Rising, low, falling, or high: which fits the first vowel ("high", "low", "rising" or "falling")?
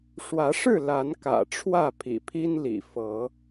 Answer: rising